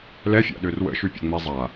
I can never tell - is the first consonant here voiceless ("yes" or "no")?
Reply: no